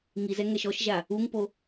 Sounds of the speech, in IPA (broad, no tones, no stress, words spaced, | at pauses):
ŋizɛ ŋɛʃɔʃʒa | uŋpo